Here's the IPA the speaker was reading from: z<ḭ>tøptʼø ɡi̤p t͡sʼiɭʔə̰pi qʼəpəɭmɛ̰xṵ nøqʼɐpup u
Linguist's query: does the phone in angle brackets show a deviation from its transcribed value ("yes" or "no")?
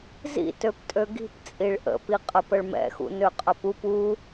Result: no